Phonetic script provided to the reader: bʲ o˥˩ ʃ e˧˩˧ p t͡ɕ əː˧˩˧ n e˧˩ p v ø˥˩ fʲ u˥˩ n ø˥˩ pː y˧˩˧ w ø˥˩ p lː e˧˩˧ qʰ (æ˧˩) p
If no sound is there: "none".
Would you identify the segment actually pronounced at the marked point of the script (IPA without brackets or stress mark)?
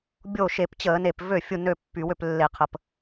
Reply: ə˧˩